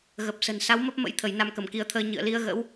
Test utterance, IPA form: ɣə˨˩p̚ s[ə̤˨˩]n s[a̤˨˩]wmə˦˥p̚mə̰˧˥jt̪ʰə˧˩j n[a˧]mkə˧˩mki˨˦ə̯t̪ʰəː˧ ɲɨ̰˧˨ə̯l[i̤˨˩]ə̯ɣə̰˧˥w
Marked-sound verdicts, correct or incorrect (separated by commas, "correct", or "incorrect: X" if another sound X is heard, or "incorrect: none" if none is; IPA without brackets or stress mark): correct, incorrect: a˨˦, correct, incorrect: i˨˦